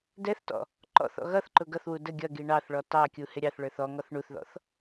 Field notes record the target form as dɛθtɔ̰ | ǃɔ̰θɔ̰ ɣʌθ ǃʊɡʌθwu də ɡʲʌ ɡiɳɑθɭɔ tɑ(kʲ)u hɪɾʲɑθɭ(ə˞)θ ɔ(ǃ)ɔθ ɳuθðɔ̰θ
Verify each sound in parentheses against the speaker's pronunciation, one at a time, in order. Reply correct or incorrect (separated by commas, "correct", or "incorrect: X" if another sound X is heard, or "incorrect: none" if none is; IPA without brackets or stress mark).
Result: correct, correct, incorrect: ŋ